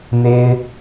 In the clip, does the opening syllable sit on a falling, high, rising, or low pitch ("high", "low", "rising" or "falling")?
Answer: high